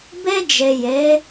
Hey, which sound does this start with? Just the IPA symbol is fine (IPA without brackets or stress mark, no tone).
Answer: b